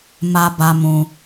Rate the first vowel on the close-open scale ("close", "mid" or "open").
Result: open